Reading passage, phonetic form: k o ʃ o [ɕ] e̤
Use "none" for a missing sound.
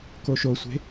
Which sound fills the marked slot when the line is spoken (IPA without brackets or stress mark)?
sʷ